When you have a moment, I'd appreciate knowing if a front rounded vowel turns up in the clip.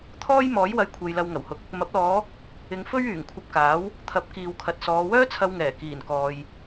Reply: yes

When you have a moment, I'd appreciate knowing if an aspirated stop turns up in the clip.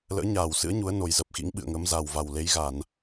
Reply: no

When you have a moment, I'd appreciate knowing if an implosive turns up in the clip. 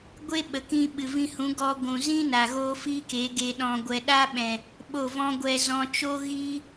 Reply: yes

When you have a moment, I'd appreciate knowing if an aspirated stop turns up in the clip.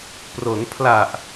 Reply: yes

